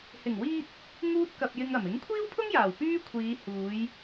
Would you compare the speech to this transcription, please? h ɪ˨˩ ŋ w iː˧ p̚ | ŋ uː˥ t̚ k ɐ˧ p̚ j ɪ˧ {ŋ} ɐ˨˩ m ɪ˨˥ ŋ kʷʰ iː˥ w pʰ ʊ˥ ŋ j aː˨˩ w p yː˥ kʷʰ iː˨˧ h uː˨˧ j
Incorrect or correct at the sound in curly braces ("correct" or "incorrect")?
correct